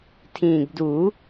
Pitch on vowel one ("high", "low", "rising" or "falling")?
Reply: low